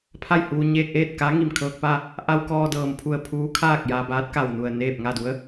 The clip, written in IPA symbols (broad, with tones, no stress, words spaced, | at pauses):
pʰa˥˨jhuː˧ ɲeː˧k̚ʔeː˥˨t̚ka˧˥ ŋi˧˩mkʰɤː˧k̚pa˥˨ | ʔa˧w kɔː˧dɤː˩m pʰu˧˩ə̯pʰuː˧˥kʰaː˥˨k̚ jaː˧baː˧˥t̚ka˧˩wnu˧˩ə̯ neː˥˨p̚ ŋa˥˨du˧˥ə̯